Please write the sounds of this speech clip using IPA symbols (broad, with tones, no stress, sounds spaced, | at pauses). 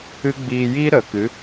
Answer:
ɨ˦ ɡ͡b iː˧ j iː˦ ɾ ə˨˦ k ɨ˨˦